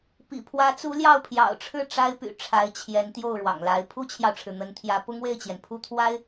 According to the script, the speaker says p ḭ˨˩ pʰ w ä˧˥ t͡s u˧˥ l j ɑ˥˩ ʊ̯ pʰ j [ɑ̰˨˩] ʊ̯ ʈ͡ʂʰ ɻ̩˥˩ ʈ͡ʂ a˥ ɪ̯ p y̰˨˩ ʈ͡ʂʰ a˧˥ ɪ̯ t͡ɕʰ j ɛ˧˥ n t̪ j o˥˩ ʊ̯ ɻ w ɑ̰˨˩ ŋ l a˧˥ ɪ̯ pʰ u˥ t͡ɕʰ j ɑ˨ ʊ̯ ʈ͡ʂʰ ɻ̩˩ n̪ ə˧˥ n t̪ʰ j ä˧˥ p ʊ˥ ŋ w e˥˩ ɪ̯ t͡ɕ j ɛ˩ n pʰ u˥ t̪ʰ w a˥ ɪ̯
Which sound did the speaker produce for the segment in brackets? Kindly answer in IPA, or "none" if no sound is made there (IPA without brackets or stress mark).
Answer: ɑ̰˨˩